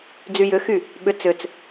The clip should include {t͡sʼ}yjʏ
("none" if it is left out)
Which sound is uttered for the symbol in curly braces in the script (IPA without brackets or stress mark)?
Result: d͡z